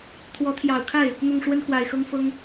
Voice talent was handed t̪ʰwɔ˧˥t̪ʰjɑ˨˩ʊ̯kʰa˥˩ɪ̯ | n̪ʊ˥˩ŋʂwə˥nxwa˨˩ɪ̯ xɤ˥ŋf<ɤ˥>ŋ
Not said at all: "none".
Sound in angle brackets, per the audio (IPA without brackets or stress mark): ɤ˥